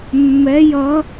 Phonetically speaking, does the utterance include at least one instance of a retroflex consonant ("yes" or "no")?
no